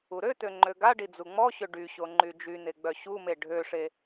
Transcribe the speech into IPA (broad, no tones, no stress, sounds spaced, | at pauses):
u ɾ ø t̪ ø ŋ͡ǃ ø ɡ a ɖ i d͡z u ŋ͡m ɔ ɕ ø ɖ y ɕ o ŋ͡ǃ y d͡ʒ y n̪ e ɡ͡b œ ɕ u m e ɖʱ ø ʂ e